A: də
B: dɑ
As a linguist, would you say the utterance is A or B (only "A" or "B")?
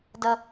A